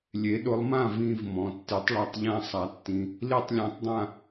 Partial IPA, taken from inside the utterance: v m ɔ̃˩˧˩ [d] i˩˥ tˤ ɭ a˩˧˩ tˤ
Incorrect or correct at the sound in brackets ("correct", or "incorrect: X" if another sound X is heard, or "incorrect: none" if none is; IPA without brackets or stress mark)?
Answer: incorrect: tː